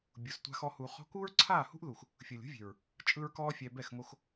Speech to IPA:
bʲ u˨ s tʷ a̤˧ x ɔ˧ h u˨ χ ɔ̤˧ k uː˦ ɹ ǀʰ aː˦˨ h ṳ˦ ʔ ð u˨ x | fʲ ɯ˨ lʲ ṳ˦ vʲ e̤˨ ɹ | t͡ʃʼ ɯ˦ ɹ k ɔː˦ fʲ ɛ˧ b ɛ˦˨ x ŋ o˧ x

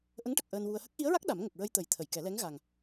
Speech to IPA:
ʔ ə˧˥ ŋ ʈ ə˨˩ k̚ ʔ əː˧ n w u˧ ə̯ h ə˦˥ k̚ ʔ i˧˥ ə̯ ɹ a˦˥ k̚ ɗ a˨˩˦ m ŋ ə˨˩ k̚ ɹ ə˧ j t̪ ə˨˩˦ j t̪ʰ ə˨˩˨ j k ɛ˨˩˦ l ɛ˧˥ ŋ ɣ a˨˩ ŋ

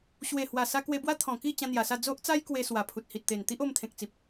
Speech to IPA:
ɕ w e˨˩ h w a˨˩ s a˧ k w e˧ b w a˦ t̪ʰ ɔ̃˨˩ k i˥˧ t͡ɕ ã˧ n̪ j a˨˩ s a˥˧ d͡z o˦ ʔ t͡s a˦ j k w e˧ s w a˨˩ pʰ u˨ t̚ h i˨ t̚ t̪ e˨˩ n t̪ i˦ ʔ o˧ m t̪ʰ ẽ˨ k̚ t͡s i˨ p̚

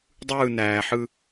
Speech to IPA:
dˤ ɯː n æː ħ ɯ

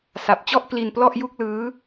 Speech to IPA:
s a˨˩ p̚ t͡ɕ ɔ˥˩ ʔ k l i˧ n p l ɔ˥˩ ʔ j u˥˩ k̚ l ɯː˦˥

